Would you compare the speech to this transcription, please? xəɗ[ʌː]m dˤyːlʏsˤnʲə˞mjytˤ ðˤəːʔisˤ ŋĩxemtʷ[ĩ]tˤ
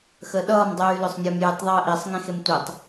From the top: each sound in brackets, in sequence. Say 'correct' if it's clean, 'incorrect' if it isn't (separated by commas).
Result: correct, incorrect